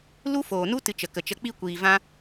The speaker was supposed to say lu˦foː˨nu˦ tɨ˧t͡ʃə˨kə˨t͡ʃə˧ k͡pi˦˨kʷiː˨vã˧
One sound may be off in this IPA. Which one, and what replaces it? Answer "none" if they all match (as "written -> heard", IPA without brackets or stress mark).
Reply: none